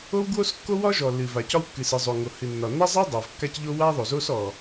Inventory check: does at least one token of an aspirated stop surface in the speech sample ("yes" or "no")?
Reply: no